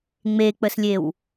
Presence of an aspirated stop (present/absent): absent